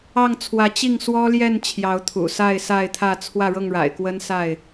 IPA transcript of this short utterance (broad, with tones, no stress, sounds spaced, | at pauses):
ɑ˥˨ ŋ t͡sʰ w ä˨˦ t͡ɕ i˥˨ ŋ s w ɔ˦ l j ɛ˥˨ n t͡ɕʰ j ɑ˨˦ ʊ̯ t̪ʰ ṵ˨˩ s a˥˨ ɪ̯ s a˥˨ ɪ̯ t̪ʰ ä˥˨ t͡sʰ w ä˥˨ ɻ ɤ˥˨ ŋ ɻ a̰˨˩ ɪ̯ k w ə˦ n s a˥˨ ɪ̯